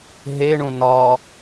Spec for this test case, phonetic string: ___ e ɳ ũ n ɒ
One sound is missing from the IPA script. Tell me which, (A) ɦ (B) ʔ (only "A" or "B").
A